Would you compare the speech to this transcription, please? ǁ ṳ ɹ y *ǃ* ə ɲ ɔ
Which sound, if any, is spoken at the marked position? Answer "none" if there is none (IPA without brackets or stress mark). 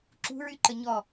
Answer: ǃ